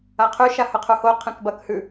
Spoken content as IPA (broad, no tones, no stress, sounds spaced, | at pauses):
a qʰ ʉ ʃ a h ɵ qʰ u h o qʰ ẽ k b ɐ k h ʉ